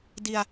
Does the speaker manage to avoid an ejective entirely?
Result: yes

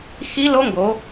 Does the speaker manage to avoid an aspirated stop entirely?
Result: yes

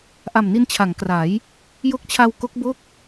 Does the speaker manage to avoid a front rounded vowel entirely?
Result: yes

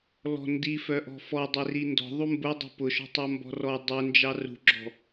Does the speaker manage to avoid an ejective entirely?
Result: yes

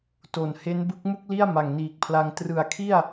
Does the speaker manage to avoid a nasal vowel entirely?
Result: yes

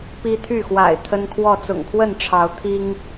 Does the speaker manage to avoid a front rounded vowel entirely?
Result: no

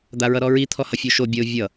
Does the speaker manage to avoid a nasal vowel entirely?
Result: yes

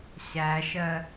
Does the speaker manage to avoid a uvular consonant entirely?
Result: yes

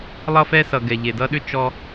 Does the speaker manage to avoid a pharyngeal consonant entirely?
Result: yes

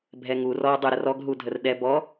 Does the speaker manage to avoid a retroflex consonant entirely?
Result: yes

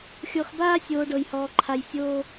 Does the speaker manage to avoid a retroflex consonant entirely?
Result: no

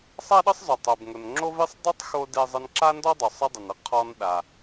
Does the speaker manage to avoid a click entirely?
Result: no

